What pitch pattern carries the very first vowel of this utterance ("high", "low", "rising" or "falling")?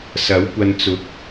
rising